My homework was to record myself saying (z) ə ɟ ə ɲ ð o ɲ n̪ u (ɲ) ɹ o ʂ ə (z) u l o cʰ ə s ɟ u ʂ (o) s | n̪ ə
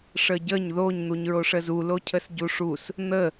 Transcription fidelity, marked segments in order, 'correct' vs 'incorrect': incorrect: ʂ, correct, correct, incorrect: u

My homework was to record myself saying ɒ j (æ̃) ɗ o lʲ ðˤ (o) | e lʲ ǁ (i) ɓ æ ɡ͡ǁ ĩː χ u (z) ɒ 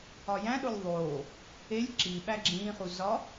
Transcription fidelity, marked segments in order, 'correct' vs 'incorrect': correct, incorrect: oː, correct, correct

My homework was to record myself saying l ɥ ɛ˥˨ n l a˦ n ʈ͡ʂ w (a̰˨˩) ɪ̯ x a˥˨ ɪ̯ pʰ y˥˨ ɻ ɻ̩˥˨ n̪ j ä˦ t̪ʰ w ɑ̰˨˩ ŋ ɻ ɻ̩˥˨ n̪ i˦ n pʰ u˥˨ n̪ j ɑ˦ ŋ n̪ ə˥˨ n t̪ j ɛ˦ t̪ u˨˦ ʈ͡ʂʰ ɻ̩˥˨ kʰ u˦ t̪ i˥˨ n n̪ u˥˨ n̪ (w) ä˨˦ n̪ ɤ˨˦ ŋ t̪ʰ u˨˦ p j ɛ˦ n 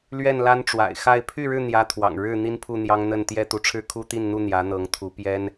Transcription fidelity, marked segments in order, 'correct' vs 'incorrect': correct, incorrect: j

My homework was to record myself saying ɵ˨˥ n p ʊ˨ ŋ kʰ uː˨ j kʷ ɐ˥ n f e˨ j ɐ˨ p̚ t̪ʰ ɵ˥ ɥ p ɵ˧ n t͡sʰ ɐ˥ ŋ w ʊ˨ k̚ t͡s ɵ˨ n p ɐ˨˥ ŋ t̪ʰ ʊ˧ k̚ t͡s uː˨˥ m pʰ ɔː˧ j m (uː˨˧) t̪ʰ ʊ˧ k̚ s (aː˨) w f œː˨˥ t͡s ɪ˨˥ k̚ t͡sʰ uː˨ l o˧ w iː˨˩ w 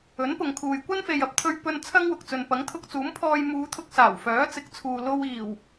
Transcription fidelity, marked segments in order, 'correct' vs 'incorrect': correct, incorrect: aː˨˩

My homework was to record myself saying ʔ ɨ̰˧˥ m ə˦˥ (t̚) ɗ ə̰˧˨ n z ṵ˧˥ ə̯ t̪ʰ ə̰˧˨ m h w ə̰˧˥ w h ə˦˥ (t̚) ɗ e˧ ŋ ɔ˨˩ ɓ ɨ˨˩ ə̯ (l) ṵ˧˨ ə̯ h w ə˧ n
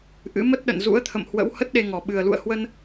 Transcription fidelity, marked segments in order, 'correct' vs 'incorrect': correct, correct, correct

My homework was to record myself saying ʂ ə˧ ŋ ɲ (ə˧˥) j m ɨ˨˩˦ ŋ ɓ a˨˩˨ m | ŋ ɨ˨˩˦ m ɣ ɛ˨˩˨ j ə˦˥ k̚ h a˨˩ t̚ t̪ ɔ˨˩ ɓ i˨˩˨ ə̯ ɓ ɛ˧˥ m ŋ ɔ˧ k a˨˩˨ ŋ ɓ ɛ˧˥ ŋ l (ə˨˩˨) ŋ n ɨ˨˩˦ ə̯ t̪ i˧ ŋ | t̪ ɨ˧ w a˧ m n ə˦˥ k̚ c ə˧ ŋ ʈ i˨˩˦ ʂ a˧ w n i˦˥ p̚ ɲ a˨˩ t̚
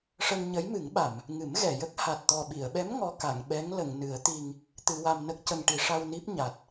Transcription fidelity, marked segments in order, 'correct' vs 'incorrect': correct, correct

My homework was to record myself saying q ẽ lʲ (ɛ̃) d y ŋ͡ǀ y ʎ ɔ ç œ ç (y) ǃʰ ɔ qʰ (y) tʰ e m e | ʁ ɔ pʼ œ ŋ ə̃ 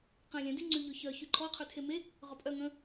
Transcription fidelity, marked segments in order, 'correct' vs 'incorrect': correct, correct, correct

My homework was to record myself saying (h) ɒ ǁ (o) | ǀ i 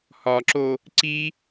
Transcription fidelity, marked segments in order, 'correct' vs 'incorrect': correct, correct

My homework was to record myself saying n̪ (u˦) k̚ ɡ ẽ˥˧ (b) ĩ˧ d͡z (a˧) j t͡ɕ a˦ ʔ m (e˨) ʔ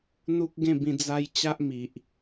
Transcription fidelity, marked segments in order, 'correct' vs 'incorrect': correct, correct, correct, incorrect: i˨

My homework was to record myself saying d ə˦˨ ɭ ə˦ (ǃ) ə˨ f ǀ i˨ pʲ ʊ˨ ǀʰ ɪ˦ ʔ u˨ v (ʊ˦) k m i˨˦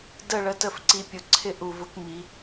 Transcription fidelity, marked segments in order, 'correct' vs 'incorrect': incorrect: t, correct

